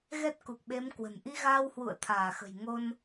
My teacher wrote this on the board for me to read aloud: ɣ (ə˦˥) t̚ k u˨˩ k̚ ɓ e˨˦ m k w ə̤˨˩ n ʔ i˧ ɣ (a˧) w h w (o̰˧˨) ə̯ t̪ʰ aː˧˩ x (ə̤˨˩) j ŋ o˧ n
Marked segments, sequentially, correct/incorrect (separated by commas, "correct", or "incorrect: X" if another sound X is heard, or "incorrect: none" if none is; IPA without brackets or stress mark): incorrect: ɛ˦˥, incorrect: aː˧, incorrect: ṵ˧˨, correct